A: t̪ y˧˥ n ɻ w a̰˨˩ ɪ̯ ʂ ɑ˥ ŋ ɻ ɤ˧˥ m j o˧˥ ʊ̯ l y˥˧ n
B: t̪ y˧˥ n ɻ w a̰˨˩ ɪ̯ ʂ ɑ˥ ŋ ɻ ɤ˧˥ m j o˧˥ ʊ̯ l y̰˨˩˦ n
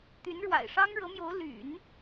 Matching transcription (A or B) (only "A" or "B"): B